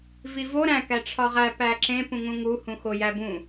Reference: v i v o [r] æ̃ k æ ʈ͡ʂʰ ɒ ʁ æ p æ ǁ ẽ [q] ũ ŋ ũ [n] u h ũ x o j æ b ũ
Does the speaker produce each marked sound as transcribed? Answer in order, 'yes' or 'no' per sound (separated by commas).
no, no, no